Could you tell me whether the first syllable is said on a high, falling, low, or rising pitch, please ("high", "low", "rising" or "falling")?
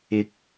rising